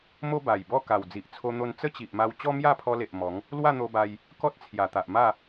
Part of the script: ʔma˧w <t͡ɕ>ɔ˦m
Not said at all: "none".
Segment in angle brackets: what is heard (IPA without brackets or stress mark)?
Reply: t͡ɕ